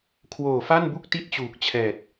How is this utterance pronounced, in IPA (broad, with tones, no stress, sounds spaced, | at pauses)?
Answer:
kʰ w oː˨˩ f a˥˩ n b u˥˩ k̚ t i˥˩ t̚ t͡ɕ uː˨˩ k̚ t͡ɕʰ ɛː˨˩ t̚